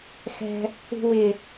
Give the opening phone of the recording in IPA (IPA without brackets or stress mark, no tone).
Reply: x